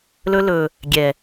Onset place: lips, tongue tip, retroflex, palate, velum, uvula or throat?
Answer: tongue tip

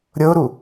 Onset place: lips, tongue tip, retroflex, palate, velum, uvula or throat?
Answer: tongue tip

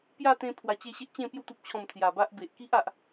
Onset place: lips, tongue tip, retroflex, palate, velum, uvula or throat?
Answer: lips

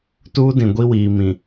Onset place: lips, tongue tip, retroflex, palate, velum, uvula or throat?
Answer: tongue tip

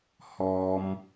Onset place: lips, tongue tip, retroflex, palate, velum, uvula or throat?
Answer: throat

